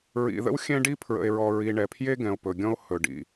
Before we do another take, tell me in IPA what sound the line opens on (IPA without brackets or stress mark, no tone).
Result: ɹ